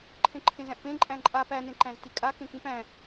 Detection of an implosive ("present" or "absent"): absent